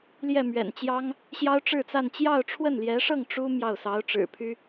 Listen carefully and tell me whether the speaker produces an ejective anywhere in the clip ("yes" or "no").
no